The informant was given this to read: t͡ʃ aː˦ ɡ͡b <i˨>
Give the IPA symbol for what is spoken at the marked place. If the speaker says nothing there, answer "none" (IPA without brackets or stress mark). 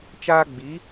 i˨˦